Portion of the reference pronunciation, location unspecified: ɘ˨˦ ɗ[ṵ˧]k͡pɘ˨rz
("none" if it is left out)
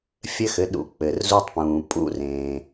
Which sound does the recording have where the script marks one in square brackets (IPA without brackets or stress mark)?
ṵ˧